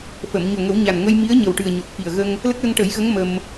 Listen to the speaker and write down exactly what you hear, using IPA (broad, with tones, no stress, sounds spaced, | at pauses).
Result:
f ə˨˩˨ m ɲ o˨˩ ŋ ə˨˩˦ w ɲ a˨˩ n ŋ ə˧ j m i˧˥ ə̯ ɲ ə˨˩ w ʈ ɨ˨˩ ə̯ ɲ o˨˩ t̚ f i˨˩ ə̯ ɣ ə˧ ŋ | l ə˦˥ k̚ l ə˧ ŋ ʈ ə˨˩˦ j ɣ ə˧˥ ŋ m ə˧ m